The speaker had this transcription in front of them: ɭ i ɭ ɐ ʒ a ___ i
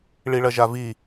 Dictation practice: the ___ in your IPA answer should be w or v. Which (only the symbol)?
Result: v